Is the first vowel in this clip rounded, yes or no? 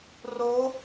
yes